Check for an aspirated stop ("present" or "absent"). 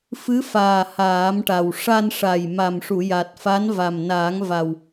absent